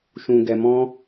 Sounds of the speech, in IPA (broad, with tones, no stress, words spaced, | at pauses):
ʃũ˧ɡɛ˧mɔ̃˦